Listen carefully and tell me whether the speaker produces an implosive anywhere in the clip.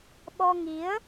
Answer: yes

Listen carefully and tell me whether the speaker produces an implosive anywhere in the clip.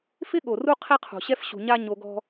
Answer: yes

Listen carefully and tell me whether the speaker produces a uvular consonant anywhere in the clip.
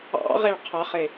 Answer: yes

